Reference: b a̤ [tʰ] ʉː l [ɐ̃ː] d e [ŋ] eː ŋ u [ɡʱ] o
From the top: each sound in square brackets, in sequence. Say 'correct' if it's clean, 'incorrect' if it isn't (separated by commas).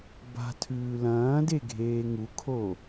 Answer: correct, correct, incorrect, incorrect